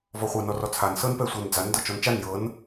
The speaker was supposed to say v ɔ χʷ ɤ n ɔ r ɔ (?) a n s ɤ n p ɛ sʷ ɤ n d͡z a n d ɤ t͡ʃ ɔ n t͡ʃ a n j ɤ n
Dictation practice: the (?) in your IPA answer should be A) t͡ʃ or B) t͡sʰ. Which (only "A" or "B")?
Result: B